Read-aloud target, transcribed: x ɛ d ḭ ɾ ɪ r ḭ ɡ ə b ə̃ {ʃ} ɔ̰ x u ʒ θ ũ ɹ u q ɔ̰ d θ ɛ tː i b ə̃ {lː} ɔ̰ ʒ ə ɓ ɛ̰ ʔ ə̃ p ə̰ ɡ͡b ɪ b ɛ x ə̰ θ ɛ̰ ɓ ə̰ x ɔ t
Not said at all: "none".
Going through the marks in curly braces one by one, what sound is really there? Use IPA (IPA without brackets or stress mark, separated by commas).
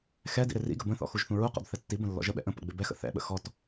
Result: θ, lː